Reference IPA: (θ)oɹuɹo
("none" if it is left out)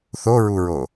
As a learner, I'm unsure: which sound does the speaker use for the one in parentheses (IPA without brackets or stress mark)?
θ